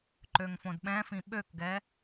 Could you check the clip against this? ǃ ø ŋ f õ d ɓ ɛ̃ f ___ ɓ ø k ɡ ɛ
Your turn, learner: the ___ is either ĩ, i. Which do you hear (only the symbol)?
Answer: ĩ